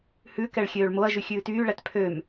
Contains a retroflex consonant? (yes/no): yes